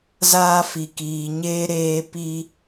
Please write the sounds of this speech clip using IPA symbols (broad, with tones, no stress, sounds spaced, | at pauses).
z aː˦ f i˨ k iː˨ ɲ eː˦ ɾ eː˦ p i˦